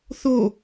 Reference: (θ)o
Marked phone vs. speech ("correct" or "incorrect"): correct